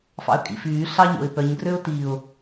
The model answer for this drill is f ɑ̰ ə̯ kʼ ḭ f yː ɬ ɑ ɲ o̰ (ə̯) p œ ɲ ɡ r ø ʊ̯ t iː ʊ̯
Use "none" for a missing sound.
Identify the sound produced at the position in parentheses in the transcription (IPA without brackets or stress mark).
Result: ɪ̯